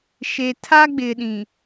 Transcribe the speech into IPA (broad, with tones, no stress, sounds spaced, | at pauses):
ʃ e˨ tʰ a˦ ɡ͡b ɪ˨ ɗ ĩ˨